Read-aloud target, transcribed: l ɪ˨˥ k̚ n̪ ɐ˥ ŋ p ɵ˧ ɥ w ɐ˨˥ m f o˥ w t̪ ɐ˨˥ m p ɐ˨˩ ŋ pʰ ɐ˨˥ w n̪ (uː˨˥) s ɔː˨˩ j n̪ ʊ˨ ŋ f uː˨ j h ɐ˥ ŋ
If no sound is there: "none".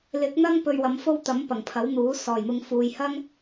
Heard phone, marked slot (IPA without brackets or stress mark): uː˨˥